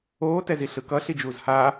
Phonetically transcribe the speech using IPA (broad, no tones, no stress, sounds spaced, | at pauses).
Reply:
oː t ɛ z i ɬ ɯ k ʌ ɬ i d͡ʒ uː z h aː